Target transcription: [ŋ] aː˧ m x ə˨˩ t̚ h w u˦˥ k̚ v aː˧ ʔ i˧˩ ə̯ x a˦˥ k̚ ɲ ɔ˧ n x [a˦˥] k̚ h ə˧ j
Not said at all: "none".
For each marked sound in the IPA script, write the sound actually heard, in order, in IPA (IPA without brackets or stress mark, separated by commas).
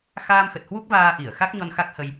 x, a˦˥